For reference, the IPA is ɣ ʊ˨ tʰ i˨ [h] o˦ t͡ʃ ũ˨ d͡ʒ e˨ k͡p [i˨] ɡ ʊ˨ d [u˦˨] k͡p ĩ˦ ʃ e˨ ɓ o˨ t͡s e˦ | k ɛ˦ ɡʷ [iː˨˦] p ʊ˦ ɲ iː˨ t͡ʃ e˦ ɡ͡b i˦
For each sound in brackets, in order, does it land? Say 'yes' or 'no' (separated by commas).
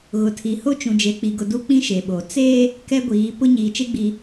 yes, yes, no, yes